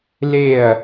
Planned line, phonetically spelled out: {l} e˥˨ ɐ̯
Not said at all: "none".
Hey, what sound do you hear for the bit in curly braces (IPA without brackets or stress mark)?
l